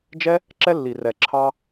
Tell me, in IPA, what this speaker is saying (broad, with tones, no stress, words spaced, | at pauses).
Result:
d͡ʒɛ˦ | ǁɛ˦lːi˨rɛ˨ ǁʰɑ˦